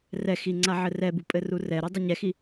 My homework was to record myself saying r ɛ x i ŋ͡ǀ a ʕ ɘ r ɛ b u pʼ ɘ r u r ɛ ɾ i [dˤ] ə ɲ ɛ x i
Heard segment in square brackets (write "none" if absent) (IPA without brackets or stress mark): dˤ